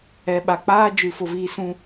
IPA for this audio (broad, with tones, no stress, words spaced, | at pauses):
ɛ˨ɓa˨k͡paː˧d͡ʒɨ˨ fo˦viː˦ sũ˧